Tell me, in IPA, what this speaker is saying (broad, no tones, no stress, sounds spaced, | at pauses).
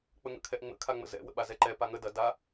k͡p ə ŋ ə̰ kʰ ɛ ʔ ŋ͡m ə̰ kʰ a ŋ͡m ə̰ z ɛ̰ w ə̰ ɓ a z ɛ ǃ ɛ p a ŋ ə d ɐ d a